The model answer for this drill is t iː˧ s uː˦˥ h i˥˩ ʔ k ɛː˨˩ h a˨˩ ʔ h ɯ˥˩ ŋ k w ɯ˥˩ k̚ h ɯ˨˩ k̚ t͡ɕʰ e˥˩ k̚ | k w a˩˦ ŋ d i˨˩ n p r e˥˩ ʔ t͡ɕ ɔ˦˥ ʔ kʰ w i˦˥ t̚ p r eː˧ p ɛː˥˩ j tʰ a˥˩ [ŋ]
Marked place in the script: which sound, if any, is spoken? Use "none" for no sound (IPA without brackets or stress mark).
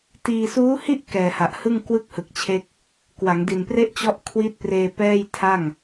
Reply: ŋ